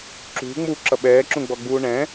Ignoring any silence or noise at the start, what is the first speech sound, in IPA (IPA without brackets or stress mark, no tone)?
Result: ǁ